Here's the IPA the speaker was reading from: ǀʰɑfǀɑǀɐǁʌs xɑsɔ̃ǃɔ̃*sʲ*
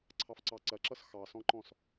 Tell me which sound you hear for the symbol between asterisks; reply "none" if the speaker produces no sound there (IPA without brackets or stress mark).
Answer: s